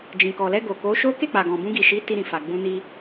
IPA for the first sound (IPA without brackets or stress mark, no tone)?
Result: d͡ʒ